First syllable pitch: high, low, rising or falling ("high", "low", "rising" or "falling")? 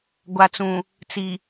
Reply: low